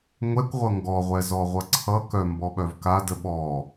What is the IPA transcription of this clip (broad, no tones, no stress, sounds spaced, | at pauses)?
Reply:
ŋʷ ɛ kʷ ʁʷ ʌ ŋ ɡ ɔ ʁʷ ɛ z ɔ ʁʷ ʌ ǀʰ ʌ k œ m b ɔ ɓ œ v k a d ə ɓ ɔ